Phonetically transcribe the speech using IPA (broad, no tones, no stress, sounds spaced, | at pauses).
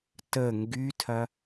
t ə ŋ ɡ y tʰ ɐ